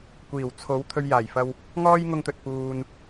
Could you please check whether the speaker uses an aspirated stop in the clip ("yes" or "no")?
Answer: yes